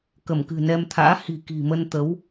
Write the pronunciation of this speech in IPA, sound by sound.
kə˧˩mkɨ̤˨˩nɛ˧mt̪ʰa̰ː˧˥ hi̤˨˩ki̤˨˩ mə˧n t̪ə˨˦w

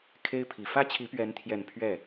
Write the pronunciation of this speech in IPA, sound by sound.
kʰe˦ɪ̯pʰi˨˩ fä˦t͡ɕʰi˨˦pɥɛ˨˦nt̪ʰjɛ˨˩n pʰɥɛ˥˨

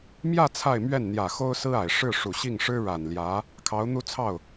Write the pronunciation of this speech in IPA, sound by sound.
mjä˥˧ t͡sʰa˥˧ɪ̯mɥɛ˥˩n n̪jä˨˩xo˥ʊ̯sɹ̩˥a˨˩ɪ̯ ʂɻ̩˥˩ʂu˨˩ɕi˥˩ŋ ʂɻ̩˥ɻa˨˩nljä˧˥ | kʰɑ˧˥ʊ̯n̪u˥˧t͡sʰɑ˥˩ʊ̯

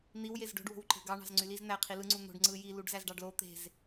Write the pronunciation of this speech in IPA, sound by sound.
n̪iw jezɖo̤ɖ wo̤wǃe̤ɡɑ ɳɑ̤zŋ͡ǀyliz n̪æ qʰilɯ ŋ͡ǀun̪o̤ɖ ŋ͡ǀɯji luɖzæzɖɑɖlo t̪e̤z

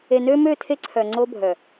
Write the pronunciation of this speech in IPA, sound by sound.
e˨nø˦mø˦˨tʰe˦ ǀʰœ˨ ŋ͡ǀo˦bʱœ˨

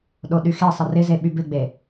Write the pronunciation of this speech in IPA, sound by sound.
ɗoɗyxesˤɪ rɪze ɓybɪɡ͡be

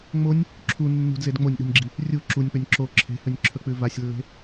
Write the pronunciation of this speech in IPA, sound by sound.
ŋ͡monʲ | ǁʰu nːṳdzed ŋ͡monʲɗṳnʲɡ͡ǁi | rʲu ǁunʲk͡pɵnʲ ǁo ǁʰe̤hɵnʲǁʰɵk͡pʉ vasʲlːe̤

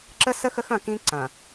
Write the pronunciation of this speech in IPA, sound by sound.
ǁə˦sə˦ xə˦xɐ̃˦˨ kĩ˦ǀɐ̃˨

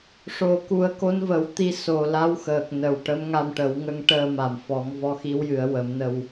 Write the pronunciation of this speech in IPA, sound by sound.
ʂo˨˩˦ku˨˩˦ə̯ ko˧˥nvə˨˩˦wt̪i˧ so˨˩la˧˥wxəː˨˩k̚nə˨˩w ʈə˧˥mŋa˧mʈə˨˩˦w ŋə˧ŋʈəː˧ma˨˩mfɔ˨˩˦ŋ vɔ˧˥xi˧˥wjɨ˨˩˦ə̯ wə˨˩˦mnə˧w

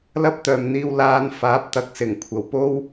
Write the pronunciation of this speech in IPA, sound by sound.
lɐ˥p̚t̪œː˨mn̪iː˧w laː˧n faː˨˥p̚t̪ɐ˨˥k̚sɪ˨˩ŋ kʷʰɐ˨˩wpo˥w

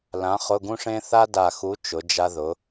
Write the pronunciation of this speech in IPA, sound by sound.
lã˨˥χʊ˧˥˧ɡũ˥ʂẽ˥ θa˥da˧˩xu˨˥ t͡ʃʊ˨˥d͡ʒa˥ðʊ˨˥

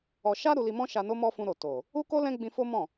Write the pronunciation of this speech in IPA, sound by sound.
ɔ˧ ʃa˦ ɾu˧li˧mɔ̃˦ ʃa˧no˦mɔ˦ fũ˦ɾo˦˨ to˨ | u˦ko˦ lɛ̃˦ɡ͡bĩ˧fo˦ mɔ̃˦˨

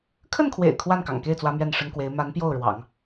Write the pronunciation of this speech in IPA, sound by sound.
kʰə˥˩nkʰwḛ˨˩ɪ̯ kʰwa˥˩nkɑ̰˨˩ŋke˥˩ɪ̯ t͡swä˥mɥɛ˥˩nʂə˥nkwe˧˥ɪ̯ ma˧˥n pjo˥˩ʊ̯ ɻwɑ̰˨˩˦ŋ

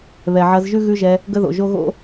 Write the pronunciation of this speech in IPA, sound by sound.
βɛ˨ʕɐ˧zʒʉ˦ ɣʉ˦ʒɛ˧ | ɡə˦ðo̰˨ʒo˦ ɣo̰˦

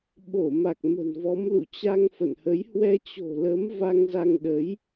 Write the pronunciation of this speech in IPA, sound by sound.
ɓo˧˩ma˨˩k̚ mə̤˨˩nvɔ˨˦m lṵ˧˨t͡ɕa˧ŋ fə̰˧˨nhə˨˦j hwɛ˧t͡ɕo̤˨˩lə˨˦m va˧ŋza˧ŋɗə˨˦j

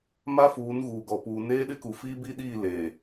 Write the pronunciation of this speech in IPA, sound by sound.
ma˦fuː˨˦nɣuː˨ɡɔ˨ puː˨neː˦ɗɪ˦ku˨ fiː˦bi˦ɗiː˦˨ leː˨

